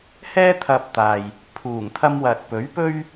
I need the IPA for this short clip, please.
hɛː˥t̪ʰɐ˧p̚t̪aː˨j | pʰuː˨˩ŋt̪ʰɐ˧mwɐ˨t̚ pɵ˨˥ɥpɵ˥ɥ

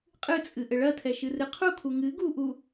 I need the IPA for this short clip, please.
qʼɨt͡sʼɨ ʔɘɭɐtʰɛ ʃɨrɨqʰukʰu ŋɨ ɡuʔu

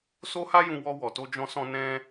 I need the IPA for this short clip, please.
so˦ha˦jũ˧wɔ˧ wɔ˨to˧d͡ʒɔ̃˧sɔ̃˧ nɛ̃˦

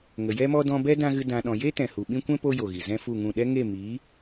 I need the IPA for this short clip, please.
ŋə˨jɛ˦mɔ˦ dɔ̃˧bɛ˦ dã˦ɣɨ˦ dã˧ɗɔ̃˧ je˦ tɛ̃˨hu˨ɓĩ˦ kʷɛ̃˦ po˦jo˨ɣi˨ zɛ̃˦fu˦˨ŋũ˦˨ ɗɛ˦ŋe˦˨ mi˨˦

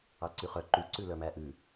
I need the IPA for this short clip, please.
ɑǀyχœ ǃy ǀʉlœmæʔʉ

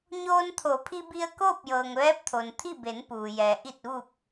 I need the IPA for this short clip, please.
ɲoː˧nt̪ʰo˩˧pʰi˧bi˧ə̯ koː˥˨p̚jɤː˩ŋʋɛː˧˥p̚t̪ʰo˩n t̪ʰi˥˨be˩˧npuː˩jɛː˩ ʔi˧˩t̚ʋu˧˩k̚

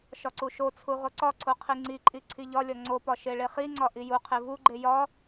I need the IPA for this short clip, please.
ʃɒǀuʃot͡sʰu ʁoǀɒǀʰo qʰiŋ͡ǀiǃʼi ǀʰiʎɒlʲɒ ŋ͡ǀopɒ ʃeɭeχiŋ͡ǀɒ ʔijuqʰe vuɡ͡ǃe jɒ

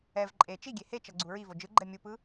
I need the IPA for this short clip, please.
ɛv ǃʼe t͡ʃiɡʲe het͡ʃʌ ɡ͡ǀuɹivo d͡ʒɯ ɡ͡ǃɛmʲupɯ

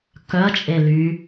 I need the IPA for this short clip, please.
kœɐ̯t͡ʃʼe ly

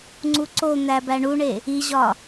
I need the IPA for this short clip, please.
ŋ͡ǀuǀon̪æbæ ɳuɳe | iʑɒ

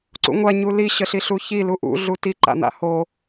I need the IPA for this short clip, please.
ǀṵŋʷa ɲuli ɕəɬiɬuçi luʔṵ ɮuti ǃa̰n̪a̰ho

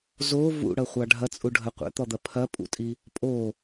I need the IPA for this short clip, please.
zo vṵɽɐχʷɑ ɖʱɐt͡sʼuɖʱɐ qʷɛ̰t̪ɔd̪ɐ pʰɐpʼṵtʼi | pʼo

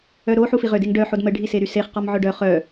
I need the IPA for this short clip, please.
œɾo ħufiʁø deŋɖœħod məɖʱi seɾyseχqɔm ʕœɖœ χœ

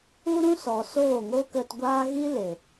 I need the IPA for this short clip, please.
u˦ɾũ˦sɔ˨ soː˦˨ŋoː˦kə˧tɡʷaː˦ ɣi˦le˨

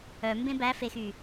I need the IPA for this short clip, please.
œmbẽ bæfexy

